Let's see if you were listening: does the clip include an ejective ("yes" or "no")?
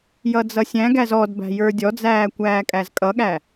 yes